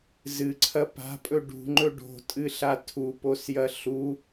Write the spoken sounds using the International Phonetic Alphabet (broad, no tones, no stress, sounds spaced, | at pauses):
z ɨ ǀʰ ɐ p a̤ pʼ ɵ ɖ ṳ ŋ͡ǃ ɵ ɖ o̤ tʼ ɨ ɬ a tʰ u p o s j ɐ ɬ u